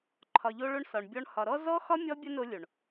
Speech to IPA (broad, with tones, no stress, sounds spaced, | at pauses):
ǃʰ ɒ˨ ʎ o˧ ɭ o˧ ɳ s ɒ˨ ɳ bʲ ɔ˧ ɳ h ɒ˨ ɾ ɔ˦ z ɔ˦ x ɒ˦ mʲ ɔ˦ bʲ ə˦ n o˧ lʲ o˨ ɳ